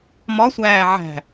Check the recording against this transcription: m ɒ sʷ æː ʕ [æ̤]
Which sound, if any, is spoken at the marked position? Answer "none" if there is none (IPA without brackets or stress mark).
æ̤